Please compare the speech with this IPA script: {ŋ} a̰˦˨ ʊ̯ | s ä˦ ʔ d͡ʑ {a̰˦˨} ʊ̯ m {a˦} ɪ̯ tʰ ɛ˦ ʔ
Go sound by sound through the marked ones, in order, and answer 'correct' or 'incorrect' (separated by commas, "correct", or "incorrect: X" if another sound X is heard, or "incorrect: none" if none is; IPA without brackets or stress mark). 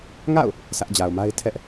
correct, incorrect: a˨, correct